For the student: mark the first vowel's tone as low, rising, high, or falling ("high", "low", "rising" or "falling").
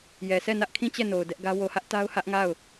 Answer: low